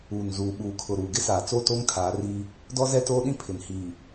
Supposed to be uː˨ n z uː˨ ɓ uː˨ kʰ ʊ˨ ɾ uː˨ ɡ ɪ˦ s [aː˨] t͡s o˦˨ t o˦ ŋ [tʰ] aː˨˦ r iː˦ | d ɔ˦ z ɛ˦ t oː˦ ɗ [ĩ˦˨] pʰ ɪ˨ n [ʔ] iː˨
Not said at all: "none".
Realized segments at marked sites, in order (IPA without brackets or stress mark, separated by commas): aː˨, tʰ, ĩ˦, h